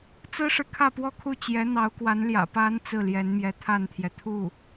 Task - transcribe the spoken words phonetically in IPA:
t͡s ɹ̩˥ ʂ ɻ̩˨ kʰ ä˥˧ p w ɔ˥˧ kʰ u˥˩ t͡ɕ j ɛ˧˥ n̪ ɑ˧˥ ʊ̯ k w a˧˥ n l j ä̰˨˩ p a˧˥ n t͡s ɹ̩˥˩ l j ɛ˧˥ n m j ɛ˧˥ t̪ʰ a˥˩ n t̪ʰ j ɛ˩ t̪ʰ u˥˩

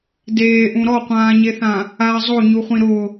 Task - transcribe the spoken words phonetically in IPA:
d eː ʔ ũ ɾ ɔ qʷ ãː ɲ e θ ã | a zˤ o ɲ u χʷ ĩ ɾ ʊ

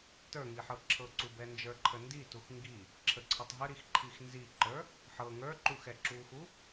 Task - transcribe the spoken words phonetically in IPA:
t ə˞ ŋ i ħ ɤ ǁʰ ɤ ǀ u b ɛ n d͡ʒ ə˞ ǃʰ ə n d i t u x ŋ ɡ i | ǁʰ ə ǀʰ ə tˤ ɦ ə ɾ i x ǃʰ i x n z i ǃ ə˞ | ħ ɤ ŋ ə˞ ǃ u x ɛ ǁ u x u

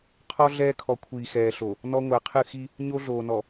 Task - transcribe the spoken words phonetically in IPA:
qʰ ɔ˦ ɮ ɛː˦ kʰ ɔ˨ kʷʰ iː˨ x ɛː˨ ɬ o˨ | n ɔ˦ ŋʷ æ˨ qʰ ɨ˦˨ x i˦ | ɲ o˦ ɮ oː˨ n ɔ˨

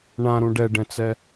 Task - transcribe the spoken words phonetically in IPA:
ɳ ã ɾ ũ ɖ ɛ ɖ ɛ̃ t͡s ɛ

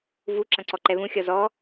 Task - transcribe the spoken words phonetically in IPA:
v u ǁ ɐ̃ ǀ ɔ ǃ ɛ β ũ xʲ ɔ z ɔ

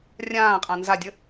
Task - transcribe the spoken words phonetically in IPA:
rʲ ãː qʼ ã n z a dʲ ə

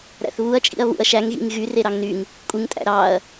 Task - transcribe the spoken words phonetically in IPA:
ɾ æ̰ θ β u ɐ̯ t͡ʃʼ ḭ ɐ̯ β ṵ ɐ̯ ʃ æ ŋ ɣ ḭ ŋ ɣ y r e ɾ ɑ ŋ n y ŋ | kʷʼ ɯ ŋ tʼ æ̰ ɾ ɑ ɐ̯

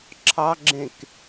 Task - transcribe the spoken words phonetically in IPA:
ǁʰ ɑ ɡ͡ǁ ẽ k

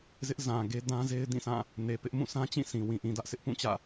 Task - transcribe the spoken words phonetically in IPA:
z ɪ˦ ʔ z ã˨ ɡ e˦ d ã˦ z e˦ ɪ̯ d ĩ˦˨ s ã˦˨ | n e˨ p ɪ˦ ʔ m ũ˦˨ s ã˦ t͡ɕ ĩ˦˨ s ĩ˨ w ĩ˨ ʔ ĩ˨ d ä˦ ʔ s ɪ˦ ʔ p ũ˦˨ t͡ɕ ä̰˦˨

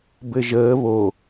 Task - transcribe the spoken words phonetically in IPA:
b ɘ ʒ əː β o

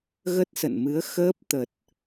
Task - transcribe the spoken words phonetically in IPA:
ɣ ə˦˥ t̚ s ə̰˧˨ n m ɨ˨˦ ə̯ x əː˦˥ p̚ t̪ ə˨˩ t̚

